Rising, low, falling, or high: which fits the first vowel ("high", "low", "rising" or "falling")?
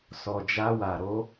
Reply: low